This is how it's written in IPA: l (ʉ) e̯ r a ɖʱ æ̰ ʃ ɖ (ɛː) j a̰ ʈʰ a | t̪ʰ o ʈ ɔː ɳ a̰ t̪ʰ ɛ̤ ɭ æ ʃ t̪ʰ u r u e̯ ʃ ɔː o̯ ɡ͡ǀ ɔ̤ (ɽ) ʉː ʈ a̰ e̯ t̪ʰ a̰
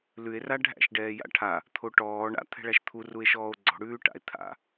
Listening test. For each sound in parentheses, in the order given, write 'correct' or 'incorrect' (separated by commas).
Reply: correct, correct, correct